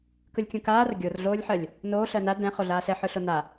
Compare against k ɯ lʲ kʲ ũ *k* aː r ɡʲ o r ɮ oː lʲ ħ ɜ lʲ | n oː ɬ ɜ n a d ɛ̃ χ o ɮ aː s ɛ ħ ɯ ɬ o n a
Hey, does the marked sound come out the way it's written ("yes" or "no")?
yes